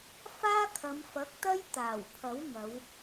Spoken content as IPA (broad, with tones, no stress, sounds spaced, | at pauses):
f aː˥ kʰ ɐ˨˧ m f ɐ˨˥ k̚ t̪ ɐ˥ j t̪ aː˨˩ w pʰ ɐ˨˥ w ŋ ɐ˨˧ w